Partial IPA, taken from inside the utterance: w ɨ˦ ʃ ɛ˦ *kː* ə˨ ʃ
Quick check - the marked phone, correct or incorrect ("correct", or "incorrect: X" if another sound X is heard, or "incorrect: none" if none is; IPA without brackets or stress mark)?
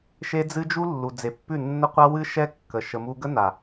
correct